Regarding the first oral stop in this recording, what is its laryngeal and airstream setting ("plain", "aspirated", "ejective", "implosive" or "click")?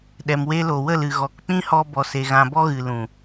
implosive